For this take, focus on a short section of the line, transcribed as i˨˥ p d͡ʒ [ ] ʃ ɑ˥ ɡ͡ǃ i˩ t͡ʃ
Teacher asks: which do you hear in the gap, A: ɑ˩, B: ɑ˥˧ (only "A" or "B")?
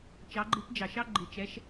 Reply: A